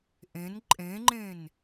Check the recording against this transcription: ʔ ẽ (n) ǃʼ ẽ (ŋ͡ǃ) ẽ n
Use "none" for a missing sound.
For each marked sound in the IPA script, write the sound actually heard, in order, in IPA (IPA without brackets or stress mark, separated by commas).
n, ŋ͡ǃ